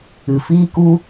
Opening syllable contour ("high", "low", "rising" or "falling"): low